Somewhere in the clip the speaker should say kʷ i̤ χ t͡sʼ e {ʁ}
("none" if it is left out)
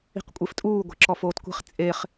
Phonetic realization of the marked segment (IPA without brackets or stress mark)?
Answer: χ